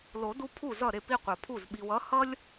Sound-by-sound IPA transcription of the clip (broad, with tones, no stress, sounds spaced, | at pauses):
l o˨˩˦ d u˦ pʰ u˥˩ z ʌ˥˩ ɾ e˥˩ p i˦ qʷ ʌ˨ pʰ u˥˩ z ɓ i˨ w ʌ˨˥ h ʌ˦ lʲ